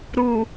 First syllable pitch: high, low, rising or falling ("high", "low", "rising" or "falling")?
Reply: low